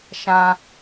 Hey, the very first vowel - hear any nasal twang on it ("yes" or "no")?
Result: yes